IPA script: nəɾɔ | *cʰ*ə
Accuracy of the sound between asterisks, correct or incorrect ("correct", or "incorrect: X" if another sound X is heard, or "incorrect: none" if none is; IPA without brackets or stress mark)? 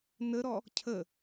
correct